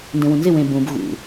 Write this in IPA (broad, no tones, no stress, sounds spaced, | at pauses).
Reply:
n d ẽ w ũ n z ɪ w ẽ b ũ b ɣ ṵ